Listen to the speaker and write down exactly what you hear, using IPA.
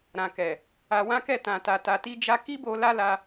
ɾã˨kɛ˨ | a˧wã˦kɛ˦˨ tã˧ta˧ta˧ ti˧d͡ʒa˧ ki˦bo˧ la˦ la˧

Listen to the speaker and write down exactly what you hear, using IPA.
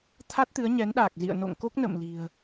t̪ʰa˦˥t̚t̪ɨ˨˦ə̯ɲɛ˨˦nɗaː˨˩k̚ zḭ˧˨ə̯no̰˧˨ŋ ko˦˥k̚nə̰˧˨mli̤˨˩ə̯

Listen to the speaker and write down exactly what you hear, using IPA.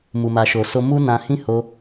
mu˨ma˨ʃo˨ so˧mu˦ nã˧hĩ˦ ho˧

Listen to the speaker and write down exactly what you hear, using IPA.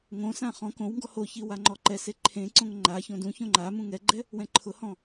ŋõsã χɔ̃ kõwŋɡɔ hoçi waŋ͡ǃɔǃɛse ǃʰẽǀõŋ ŋ͡ǃa çõdũçõ ŋ͡ǃa mũŋɛɡ͡ǃɛ | wɛ̃ǃʰʊhɔ̃

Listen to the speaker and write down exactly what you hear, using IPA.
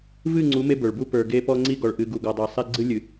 vɨ˦˨ŋ͡ǀu˨˦ me˦bə˞˨ɭbu˦ pə˞˨ɡe˦ pɔ˦ŋ͡ǀi˦ɡɔ˨ɭ ʔɨ˨ɡu˨ɡɔ˨dˤe˨ sˤe˦ ɡ͡ǀɨ˦lʲɨ˨

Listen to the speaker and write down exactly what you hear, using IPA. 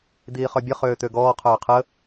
d̪iːχœbʲə χøːt̪øɡɔː qʰœːqʰə

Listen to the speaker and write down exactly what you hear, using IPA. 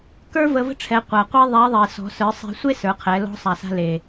kə˞˥ və˧və̤˥ʈ͡ʂʰɛ˩˧ qʷa˩qʷɛ˧ ðˤɛ˧˥ ðˤe˩sɔ̤˩˧sə˞˩˧ sˤe̤˧sʷe˥sə˞˩˧qʰɛ˩˧ lɔ̤˧˥sˤa˩sa̤˧ le˩

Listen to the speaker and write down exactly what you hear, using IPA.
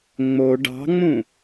ŋ͡mo ɖɑ̤ŋ͡mũ

